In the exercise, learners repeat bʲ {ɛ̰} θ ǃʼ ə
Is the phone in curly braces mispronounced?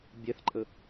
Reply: yes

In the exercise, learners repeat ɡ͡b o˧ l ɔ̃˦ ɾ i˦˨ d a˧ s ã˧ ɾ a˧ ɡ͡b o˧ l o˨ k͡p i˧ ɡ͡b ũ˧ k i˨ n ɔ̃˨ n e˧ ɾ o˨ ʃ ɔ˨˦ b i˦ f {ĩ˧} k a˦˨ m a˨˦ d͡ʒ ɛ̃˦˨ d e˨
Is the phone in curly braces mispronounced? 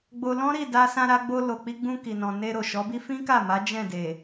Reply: yes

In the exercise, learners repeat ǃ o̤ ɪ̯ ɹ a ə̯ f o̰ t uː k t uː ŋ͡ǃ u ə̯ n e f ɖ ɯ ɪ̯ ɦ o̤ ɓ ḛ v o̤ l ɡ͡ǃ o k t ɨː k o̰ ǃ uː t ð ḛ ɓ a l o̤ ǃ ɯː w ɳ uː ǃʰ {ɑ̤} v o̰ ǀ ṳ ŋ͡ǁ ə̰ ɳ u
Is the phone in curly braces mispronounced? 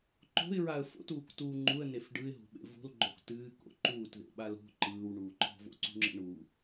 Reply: yes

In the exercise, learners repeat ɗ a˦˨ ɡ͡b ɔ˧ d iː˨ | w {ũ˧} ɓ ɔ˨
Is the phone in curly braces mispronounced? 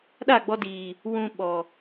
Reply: no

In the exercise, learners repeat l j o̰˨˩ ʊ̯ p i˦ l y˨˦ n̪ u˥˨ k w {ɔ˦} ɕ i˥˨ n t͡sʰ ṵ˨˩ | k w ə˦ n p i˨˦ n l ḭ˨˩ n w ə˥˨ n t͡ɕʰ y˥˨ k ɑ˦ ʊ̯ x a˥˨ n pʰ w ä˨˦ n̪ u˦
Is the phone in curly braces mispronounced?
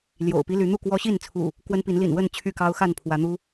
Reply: no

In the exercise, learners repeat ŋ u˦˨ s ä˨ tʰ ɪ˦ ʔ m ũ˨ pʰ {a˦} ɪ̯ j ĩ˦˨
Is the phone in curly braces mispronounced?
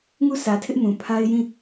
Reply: no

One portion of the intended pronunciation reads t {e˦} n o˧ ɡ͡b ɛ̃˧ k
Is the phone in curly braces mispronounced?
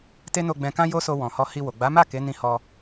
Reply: no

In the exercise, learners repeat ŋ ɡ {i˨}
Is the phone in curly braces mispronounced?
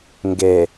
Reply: yes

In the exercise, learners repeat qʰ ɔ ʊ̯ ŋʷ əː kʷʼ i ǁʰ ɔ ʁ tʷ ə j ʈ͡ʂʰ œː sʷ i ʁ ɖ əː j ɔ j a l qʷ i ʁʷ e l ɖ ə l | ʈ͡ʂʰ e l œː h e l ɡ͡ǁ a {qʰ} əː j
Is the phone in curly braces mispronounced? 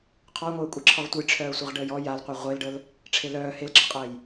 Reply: yes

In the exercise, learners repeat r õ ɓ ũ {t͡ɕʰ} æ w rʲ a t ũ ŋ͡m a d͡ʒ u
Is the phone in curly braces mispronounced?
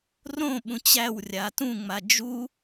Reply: yes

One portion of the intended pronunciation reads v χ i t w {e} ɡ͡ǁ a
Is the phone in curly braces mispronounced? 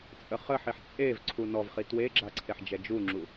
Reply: no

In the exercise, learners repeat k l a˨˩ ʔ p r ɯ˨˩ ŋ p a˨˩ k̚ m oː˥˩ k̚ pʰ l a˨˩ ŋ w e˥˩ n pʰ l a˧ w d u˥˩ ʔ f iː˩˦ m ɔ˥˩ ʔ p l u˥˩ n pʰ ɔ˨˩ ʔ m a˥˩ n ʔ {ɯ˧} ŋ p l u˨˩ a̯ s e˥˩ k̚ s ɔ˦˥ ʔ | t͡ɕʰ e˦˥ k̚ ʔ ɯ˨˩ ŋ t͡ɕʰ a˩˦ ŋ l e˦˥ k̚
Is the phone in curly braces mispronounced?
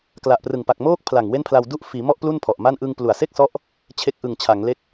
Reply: no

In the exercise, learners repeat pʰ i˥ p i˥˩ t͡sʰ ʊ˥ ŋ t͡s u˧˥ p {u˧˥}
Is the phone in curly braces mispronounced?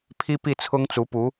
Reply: no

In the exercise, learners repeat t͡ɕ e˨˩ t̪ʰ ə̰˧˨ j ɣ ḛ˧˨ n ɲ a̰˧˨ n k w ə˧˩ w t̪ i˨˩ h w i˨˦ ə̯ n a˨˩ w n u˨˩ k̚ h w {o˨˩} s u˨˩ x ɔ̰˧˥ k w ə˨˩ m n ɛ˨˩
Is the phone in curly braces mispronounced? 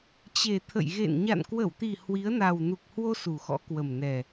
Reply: yes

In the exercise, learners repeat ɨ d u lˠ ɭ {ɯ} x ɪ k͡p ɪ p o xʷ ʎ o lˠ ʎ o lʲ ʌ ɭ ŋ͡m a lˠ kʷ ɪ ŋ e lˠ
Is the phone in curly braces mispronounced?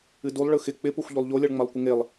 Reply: no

